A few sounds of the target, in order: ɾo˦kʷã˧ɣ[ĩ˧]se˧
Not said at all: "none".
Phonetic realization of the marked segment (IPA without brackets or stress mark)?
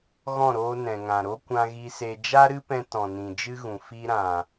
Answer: i˧